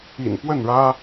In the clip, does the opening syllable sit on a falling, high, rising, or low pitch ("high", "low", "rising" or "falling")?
low